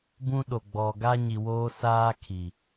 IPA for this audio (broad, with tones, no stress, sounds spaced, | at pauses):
b ũ˦ ɗ o˨ ɡ͡b ɔ˨ ɡ a˦ ɲ i˨ w oː˦ s aː˦ kʰ i˨